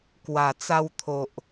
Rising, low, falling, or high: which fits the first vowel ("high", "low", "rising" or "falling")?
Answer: low